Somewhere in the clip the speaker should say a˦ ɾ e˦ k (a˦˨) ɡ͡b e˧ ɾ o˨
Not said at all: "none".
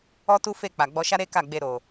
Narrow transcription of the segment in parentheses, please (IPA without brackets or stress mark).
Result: a˦˨